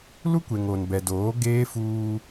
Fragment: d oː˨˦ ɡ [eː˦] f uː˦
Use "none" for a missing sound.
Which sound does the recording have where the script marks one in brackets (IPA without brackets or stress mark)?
eː˦